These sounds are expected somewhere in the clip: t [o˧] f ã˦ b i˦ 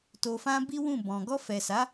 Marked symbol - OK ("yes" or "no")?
yes